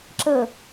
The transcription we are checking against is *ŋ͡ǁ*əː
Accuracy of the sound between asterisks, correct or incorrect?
incorrect